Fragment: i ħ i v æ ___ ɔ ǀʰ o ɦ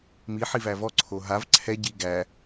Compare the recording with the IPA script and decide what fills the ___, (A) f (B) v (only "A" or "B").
B